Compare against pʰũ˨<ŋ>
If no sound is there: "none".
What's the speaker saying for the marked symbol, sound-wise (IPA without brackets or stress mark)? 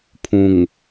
ŋ